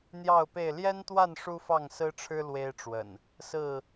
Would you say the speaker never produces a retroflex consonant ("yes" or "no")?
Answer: no